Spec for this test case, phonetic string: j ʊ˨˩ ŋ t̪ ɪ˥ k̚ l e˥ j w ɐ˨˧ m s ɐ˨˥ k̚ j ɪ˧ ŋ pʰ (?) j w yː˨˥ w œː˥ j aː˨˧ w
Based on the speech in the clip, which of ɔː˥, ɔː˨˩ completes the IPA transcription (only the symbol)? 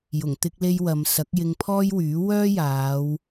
ɔː˥